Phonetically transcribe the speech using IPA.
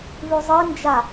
βʉzˤɨnd͡ʒa

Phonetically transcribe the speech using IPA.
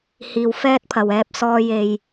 hiː˨˩wfɛː˧t̚pʰɐ˨˩w ɛː˧p̚sɔː˧je˨j

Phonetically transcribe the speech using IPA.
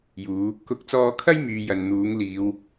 juː˨˧ | kʊ˨˥k̚t͡sɔː˧kʰɐ˥j myː˧jɐ˨nn̪uː˨˥ŋliː˨˧w

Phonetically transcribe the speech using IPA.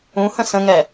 ũhə̃ sə̃ŋɛ

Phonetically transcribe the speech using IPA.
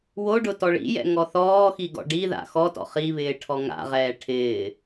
woɖʊ tɔɭḭjɛ̰ ŋɔθɔːxi ɡɔ̰ɖiða̰ xɔtɔ̰ χiβɪː ʈʰɔŋa̰ʁɛː ʈʰɪː

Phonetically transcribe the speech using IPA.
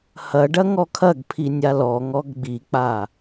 hɐɖɐ ŋɔkʰɐɡpʰi nʲalɔŋɔɡ ɡ͡bik͡pa

